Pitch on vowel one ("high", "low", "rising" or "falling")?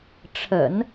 low